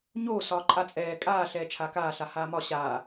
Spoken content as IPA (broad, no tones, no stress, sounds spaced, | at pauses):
ɲ oː s ɒː ǃʼ a t͡sʼ ɛː kʼ aː ɬ ɛː t͡ʃʰ a k aː ɬ a h aː m ɒ ɕ aː